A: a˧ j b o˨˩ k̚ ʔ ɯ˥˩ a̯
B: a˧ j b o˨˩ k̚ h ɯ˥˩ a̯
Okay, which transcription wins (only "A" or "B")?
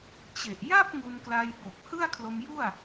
B